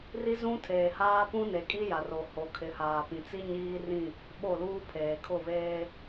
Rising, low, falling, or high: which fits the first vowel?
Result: high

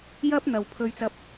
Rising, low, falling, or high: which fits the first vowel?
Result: high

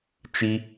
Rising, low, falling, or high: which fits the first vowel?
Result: high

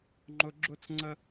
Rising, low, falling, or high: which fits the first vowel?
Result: high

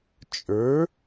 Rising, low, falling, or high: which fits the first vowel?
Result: rising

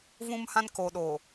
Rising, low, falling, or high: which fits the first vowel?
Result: high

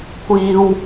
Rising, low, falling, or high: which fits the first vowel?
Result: high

